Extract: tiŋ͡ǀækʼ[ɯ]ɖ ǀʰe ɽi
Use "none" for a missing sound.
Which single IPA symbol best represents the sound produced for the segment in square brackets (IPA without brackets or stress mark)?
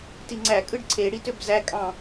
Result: ɯ